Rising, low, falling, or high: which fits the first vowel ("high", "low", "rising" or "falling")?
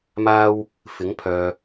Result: high